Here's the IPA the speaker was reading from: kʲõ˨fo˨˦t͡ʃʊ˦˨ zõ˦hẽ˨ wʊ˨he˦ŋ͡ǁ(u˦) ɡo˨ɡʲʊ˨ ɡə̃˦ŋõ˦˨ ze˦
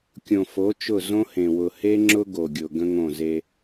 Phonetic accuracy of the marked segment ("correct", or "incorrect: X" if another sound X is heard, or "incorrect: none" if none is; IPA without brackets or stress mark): incorrect: ʊ˦